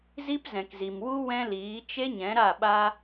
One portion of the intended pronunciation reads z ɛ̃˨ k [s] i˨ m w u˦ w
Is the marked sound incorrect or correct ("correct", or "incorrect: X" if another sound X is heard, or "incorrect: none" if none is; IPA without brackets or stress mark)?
incorrect: z